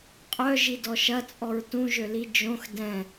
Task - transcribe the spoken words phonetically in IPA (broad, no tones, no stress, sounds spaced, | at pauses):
qʼ œ ʒ i d ɔ ʃ ɐ t͡sʼ ɔ ɹ t ũ ʒ ø l i d͡ʒ õ x d ɛ̃